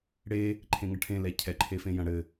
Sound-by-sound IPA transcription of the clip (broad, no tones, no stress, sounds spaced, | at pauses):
ɽ e | ǃʰ ẽ ŋ ɐ ʈʰ ẽ l ɛ cʰ ɛ ǃʰ e f ẽ j ɐ̃ ɽ ɘ